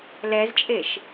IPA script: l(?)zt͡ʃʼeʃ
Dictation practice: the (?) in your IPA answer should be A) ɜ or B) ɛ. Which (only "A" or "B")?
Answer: B